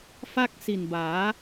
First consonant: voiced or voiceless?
voiceless